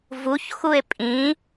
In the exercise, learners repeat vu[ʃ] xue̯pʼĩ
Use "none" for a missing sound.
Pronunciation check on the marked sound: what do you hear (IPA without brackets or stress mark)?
ç